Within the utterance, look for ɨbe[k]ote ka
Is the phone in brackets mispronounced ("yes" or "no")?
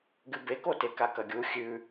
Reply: no